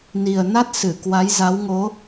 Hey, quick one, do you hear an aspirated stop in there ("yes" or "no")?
no